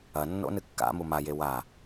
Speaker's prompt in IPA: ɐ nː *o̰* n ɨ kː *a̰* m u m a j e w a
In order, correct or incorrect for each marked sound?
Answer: correct, correct

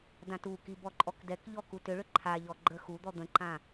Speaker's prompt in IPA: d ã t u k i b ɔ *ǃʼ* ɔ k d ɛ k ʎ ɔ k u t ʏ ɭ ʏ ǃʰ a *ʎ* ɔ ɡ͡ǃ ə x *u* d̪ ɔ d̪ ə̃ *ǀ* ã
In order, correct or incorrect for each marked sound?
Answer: correct, correct, correct, incorrect

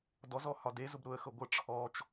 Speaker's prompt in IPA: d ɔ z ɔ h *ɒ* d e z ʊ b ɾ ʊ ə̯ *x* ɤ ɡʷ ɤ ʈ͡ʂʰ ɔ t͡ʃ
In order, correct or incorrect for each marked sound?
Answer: correct, correct

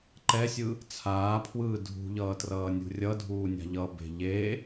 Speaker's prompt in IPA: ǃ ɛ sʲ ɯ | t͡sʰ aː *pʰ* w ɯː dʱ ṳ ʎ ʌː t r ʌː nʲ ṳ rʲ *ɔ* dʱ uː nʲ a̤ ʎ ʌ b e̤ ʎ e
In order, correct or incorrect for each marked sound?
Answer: correct, incorrect

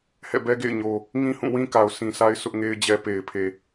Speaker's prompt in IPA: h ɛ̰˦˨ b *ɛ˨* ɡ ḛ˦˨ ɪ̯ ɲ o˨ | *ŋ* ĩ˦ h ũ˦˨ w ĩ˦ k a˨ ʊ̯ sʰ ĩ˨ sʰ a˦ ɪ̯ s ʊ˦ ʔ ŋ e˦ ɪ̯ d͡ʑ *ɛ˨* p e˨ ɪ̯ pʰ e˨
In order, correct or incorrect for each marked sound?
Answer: incorrect, correct, incorrect

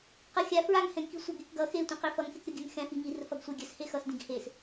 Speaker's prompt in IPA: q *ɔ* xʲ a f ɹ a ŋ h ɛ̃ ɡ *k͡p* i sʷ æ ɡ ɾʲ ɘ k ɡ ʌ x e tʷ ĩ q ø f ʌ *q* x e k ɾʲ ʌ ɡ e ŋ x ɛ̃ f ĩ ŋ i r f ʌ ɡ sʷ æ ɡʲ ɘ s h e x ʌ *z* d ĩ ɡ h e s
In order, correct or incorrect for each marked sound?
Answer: incorrect, incorrect, incorrect, incorrect

